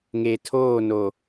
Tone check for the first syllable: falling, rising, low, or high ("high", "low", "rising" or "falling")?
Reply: low